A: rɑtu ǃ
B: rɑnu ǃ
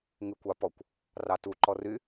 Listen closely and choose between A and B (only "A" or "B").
A